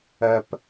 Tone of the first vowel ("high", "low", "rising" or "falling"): high